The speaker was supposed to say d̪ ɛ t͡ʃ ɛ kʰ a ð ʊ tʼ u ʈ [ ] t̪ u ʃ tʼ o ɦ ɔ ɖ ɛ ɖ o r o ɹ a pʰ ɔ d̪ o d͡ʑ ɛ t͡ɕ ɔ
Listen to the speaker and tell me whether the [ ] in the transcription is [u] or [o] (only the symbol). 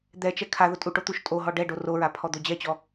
o